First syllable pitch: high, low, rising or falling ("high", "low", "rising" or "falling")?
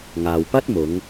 low